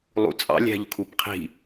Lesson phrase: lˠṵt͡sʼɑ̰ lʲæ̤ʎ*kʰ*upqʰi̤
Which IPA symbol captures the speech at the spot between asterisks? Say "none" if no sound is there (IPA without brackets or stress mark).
kʰ